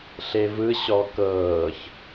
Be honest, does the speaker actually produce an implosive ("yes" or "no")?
no